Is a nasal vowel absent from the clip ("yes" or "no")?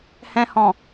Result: no